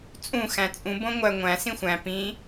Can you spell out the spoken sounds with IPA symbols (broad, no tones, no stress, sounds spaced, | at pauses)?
t͡sʼ ũ x æ̃ t͡sʼ ũ b õ ŋʷ æ ŋʷ æ̃ s ĩ xʷ æ̃ p ĩ